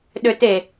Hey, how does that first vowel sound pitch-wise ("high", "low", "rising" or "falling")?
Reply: high